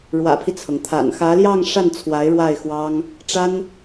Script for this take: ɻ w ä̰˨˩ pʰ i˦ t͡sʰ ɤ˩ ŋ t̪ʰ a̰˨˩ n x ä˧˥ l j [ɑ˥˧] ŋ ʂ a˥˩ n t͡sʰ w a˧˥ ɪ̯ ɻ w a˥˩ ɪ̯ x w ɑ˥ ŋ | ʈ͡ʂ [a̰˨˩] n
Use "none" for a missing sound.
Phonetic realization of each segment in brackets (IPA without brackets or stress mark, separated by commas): ɑ˥˧, a˥